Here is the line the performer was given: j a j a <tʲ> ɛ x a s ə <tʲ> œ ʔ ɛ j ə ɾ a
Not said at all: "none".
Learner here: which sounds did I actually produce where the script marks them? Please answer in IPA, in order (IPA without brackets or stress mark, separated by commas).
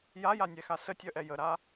nʲ, tʲ